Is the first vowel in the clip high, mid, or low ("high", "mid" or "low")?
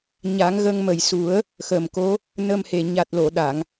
low